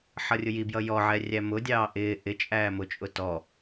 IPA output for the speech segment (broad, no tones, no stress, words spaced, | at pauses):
ħʌrʲʊjibjʌ jɔʕɛ rʲæmʊdʲɑː ʔɪː ʔɪ t͡ʃʼæːmʊt͡ʃʼʊ tɔ